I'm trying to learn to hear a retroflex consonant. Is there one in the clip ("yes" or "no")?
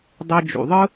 no